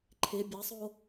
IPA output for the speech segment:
ǃʰ ɪ bʲ a sˤ o

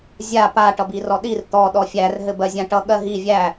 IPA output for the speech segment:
zʲ a p a ʈ ʌ b i r ɔ ɗ i r t̪ ɔ ɗ ɔ fʲ æ r ɦ ɘ b ɜ zʲ ã ʈ ʌ ɠ ɜ ɦ i vʲ æ

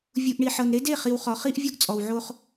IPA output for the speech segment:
vʲ u˨ ʔ ɳ i˨ ħ ɤ˨ n ɾ e˦ d e˦˨ χ i˨ w χ ɔ˨ χ i˦ ʔ vʲ o˦ ɡ t͡sʼ ɔ˨ w ʕ o˦ χ

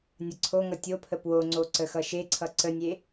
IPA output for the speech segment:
nʲ ʌ ǀʰ o ŋ ʌ tʲ o pʰ ə p w o ŋ͡ǀ o ǀ ə x ʌ ʃ e ǀʰ ʌ ǀ ə nʲ e

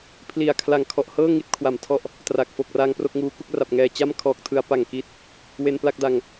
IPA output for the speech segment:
pʰ l i˨˩ a̯ kʰ l a˨˩ ŋ kʰ ɔ˨˩ ʔ h ɤː˥˩ ŋ i˦˥ t̚ kʰ w a˨˩ m tʰ ɔ˥˩ ʔ | t r a˨˩ k̚ f o˨˩ k̚ r a˧ ŋ p r o˥˩ k̚ ŋ uː˦˥ k u˥˩ k̚ r a˨˩ p̚ ŋ ɛː˨˩ t͡ɕ a˥˩ m kʰ ɔː˨˩ k̚ tʰ ɯ˧ a̯ p a˨˩ ŋ k i˦˥ t̚ | w e˧ n p l a˥˩ k̚ d a˨˩ ŋ

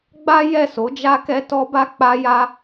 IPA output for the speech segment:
ɡ͡b a˦ j ɛ˦˨ s o˨˦ d͡ʒ a˦ k ɛ˧ t ɔ˧ b a˧ k͡p a˧ j a˧

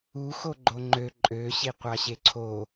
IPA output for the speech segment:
u x o ɡ͡ǃ o ŋ͡ǃ ø ǃʼ ø ɕ i qʷ ɑ ɕ e ǀʰ o

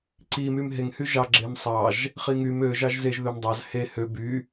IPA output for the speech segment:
ǀ i m y m ɦ e ŋ h y ʒ ɑ ɡ͡ǁ e m sˤ ɑ ʒ | χ i ŋ y m ø ʒ ɑ ʒ z e ʒ ð ø m dˤ ɑ z h e h ø b y

